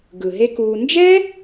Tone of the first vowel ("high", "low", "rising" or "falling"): low